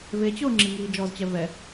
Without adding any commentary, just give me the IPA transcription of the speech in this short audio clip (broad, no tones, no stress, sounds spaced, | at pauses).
v e t͡ɕ ʊː ŋ͡ǁ i ŋ iː d͡ʒ ɔ z t͡ɕ ɛ v ɛ